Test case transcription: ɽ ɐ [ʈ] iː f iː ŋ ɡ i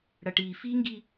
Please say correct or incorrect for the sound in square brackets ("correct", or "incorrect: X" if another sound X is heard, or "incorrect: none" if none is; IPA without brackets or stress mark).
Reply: correct